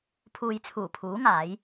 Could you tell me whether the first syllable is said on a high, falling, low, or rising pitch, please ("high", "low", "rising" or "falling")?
low